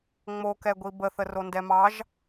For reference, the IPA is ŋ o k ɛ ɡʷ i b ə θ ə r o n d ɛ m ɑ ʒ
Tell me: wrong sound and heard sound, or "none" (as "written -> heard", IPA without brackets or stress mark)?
ŋ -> ŋ͡m